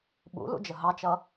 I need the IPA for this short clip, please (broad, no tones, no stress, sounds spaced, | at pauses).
ɓ ṵ l ṵ d͡ʒ ə ɦ ɑ t͡ʃ ʌ